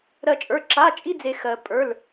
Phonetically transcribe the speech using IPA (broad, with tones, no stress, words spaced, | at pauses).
ɾɜ˥t͡ʃʼə˞˧˥˧ ǁa˧˥˧t͡ʃʼi˥d͡ze˧ xɜ˧ pʼə˞˧˥˧l